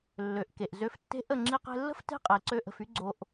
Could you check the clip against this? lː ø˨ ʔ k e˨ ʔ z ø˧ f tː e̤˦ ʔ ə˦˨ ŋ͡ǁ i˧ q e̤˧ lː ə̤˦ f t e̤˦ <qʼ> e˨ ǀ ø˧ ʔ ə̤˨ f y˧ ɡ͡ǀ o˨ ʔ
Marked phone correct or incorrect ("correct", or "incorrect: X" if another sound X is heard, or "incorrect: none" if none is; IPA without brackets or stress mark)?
correct